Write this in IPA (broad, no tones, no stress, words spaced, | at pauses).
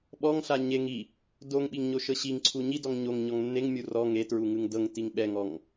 ɓɔŋɬa ɲeŋ i | doŋɓiŋɲo ʃɤɕiŋ ǀʰuɲi dɔŋɲoŋ ɲɔŋnːeŋmʲu rɔ ŋe tɹuŋɯŋdɤŋ tiŋɓɛŋɔŋ